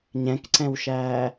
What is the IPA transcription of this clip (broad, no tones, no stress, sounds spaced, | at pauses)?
ɲ ɛ̃ k ǀ ɛ̃ w ʃ æː